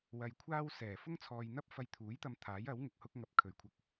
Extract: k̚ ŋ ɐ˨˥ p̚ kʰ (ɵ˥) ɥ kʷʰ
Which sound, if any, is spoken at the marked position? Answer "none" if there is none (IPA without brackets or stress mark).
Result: ɵ˨˩